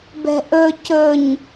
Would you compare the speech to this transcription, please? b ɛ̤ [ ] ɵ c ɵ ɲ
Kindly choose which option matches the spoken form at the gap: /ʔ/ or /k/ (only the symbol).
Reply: ʔ